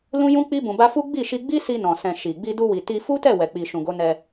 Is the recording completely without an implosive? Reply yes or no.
yes